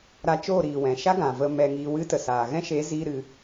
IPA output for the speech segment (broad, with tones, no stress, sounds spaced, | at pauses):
ɾ a˧ t͡ʃ oː˦˨ ɾ iː˨ w ɛ̃˨ ʃ a˦ ɡ ã˨ v ə˧ m ɛ˧ ŋ iː˧ w ɨ˦ t ə˨ s aː˨ ɣ ɛ̃˦ ʃ e˨˦ z iː˧ ɾ ɨ˧